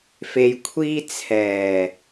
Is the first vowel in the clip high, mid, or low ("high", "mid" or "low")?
mid